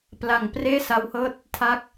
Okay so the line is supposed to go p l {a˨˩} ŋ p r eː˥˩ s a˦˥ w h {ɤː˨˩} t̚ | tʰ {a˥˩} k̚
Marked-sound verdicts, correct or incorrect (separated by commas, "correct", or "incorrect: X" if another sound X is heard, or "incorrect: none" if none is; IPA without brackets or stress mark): correct, incorrect: ɤː˥˩, correct